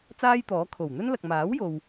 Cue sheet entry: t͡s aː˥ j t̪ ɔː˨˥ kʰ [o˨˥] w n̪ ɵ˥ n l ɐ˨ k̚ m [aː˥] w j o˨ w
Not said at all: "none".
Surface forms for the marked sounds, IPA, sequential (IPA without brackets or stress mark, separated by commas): o˨˩, aː˨˥